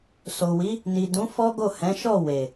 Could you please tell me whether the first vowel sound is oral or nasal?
oral